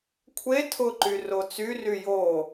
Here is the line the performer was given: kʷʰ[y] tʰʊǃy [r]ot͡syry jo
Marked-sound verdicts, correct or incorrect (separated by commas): incorrect, correct